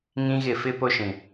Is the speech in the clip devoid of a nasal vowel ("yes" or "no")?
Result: no